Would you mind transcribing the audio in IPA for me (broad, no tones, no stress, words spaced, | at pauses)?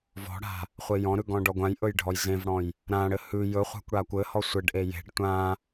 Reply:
vɔ̤ɽa̤ | χʷejɔ̃ɾʉ ɡɔ̃ɖɔɡʷãjʔɵj ɖʱɔjzẽvɽɔ̃j | ɾãɽɘ hʉ jɵχʷa̤kʷ ɽakʷɘhɔ sʷɘɖʔe je̤ɖ tʷã